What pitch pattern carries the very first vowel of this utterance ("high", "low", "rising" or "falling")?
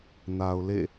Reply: low